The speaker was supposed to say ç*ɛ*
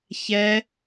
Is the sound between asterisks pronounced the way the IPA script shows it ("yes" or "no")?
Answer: yes